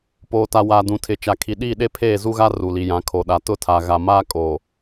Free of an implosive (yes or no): no